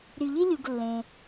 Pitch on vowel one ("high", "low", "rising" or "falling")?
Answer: low